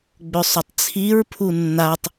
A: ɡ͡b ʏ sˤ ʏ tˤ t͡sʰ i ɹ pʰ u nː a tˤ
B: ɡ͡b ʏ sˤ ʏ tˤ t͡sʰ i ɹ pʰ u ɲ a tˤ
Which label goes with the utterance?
A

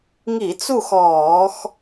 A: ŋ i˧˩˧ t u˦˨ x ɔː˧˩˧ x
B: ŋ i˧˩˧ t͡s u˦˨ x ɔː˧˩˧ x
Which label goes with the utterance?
B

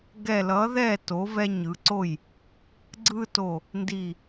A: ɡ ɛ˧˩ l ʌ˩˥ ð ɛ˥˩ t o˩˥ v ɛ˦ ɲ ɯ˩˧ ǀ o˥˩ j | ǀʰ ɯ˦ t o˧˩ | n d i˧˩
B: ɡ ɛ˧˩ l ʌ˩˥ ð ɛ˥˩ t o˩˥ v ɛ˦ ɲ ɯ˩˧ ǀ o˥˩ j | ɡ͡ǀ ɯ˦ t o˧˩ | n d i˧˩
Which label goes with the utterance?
B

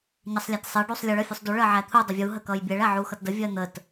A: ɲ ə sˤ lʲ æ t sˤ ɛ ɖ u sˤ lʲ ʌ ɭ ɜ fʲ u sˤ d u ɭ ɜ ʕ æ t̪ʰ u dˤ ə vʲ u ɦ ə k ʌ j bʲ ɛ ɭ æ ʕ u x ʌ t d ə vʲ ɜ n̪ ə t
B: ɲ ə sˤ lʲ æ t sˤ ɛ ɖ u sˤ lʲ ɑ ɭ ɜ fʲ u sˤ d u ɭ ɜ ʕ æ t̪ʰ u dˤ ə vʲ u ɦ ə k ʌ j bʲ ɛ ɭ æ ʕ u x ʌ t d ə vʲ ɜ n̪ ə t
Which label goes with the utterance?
A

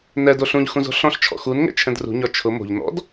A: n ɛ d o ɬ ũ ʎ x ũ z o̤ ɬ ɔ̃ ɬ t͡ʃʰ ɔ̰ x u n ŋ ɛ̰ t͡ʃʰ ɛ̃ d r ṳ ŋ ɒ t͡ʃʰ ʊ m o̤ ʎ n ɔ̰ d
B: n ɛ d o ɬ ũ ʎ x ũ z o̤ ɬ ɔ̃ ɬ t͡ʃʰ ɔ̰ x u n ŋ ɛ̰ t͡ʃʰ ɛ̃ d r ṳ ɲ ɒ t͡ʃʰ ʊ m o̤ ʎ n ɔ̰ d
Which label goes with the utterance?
B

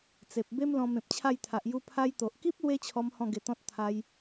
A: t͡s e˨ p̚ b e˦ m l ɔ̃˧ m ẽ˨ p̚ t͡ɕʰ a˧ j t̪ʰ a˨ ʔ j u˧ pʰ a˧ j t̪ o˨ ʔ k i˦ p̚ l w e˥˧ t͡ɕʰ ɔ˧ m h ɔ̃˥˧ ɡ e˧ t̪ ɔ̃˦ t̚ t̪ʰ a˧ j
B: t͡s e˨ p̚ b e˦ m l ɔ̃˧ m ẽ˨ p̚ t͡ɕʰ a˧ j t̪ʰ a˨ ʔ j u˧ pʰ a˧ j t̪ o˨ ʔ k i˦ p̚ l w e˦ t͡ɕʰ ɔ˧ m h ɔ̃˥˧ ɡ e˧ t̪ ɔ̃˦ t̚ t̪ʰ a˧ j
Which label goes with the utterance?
B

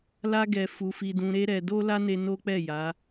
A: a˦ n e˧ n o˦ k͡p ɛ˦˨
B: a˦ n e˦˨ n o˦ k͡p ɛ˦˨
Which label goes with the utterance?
A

